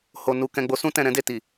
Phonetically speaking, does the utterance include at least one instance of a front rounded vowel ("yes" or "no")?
no